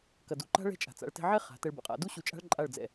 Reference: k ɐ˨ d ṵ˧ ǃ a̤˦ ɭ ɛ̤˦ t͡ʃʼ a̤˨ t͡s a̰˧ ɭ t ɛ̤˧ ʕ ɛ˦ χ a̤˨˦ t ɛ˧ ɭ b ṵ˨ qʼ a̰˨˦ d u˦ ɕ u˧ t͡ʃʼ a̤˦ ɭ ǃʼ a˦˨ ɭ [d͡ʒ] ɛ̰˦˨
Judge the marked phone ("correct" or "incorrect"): incorrect